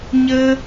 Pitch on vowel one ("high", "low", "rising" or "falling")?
high